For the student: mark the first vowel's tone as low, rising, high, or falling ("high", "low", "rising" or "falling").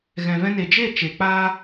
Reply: low